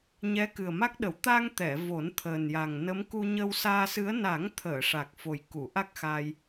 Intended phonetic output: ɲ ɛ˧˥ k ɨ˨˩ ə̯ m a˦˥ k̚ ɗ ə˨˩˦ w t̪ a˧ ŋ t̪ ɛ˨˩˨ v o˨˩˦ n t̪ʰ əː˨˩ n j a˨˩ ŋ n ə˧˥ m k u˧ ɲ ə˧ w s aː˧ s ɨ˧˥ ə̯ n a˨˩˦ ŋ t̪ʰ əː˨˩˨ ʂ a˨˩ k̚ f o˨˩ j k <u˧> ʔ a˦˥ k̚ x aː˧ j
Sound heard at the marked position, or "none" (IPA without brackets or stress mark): u˨˩˨